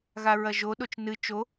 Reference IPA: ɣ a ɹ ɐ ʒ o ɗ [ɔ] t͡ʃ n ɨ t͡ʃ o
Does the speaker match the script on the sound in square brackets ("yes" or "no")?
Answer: no